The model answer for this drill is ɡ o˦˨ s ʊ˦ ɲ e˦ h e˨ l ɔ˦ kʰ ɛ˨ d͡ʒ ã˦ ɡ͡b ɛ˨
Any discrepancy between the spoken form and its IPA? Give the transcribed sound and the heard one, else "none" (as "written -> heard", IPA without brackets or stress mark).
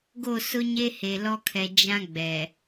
none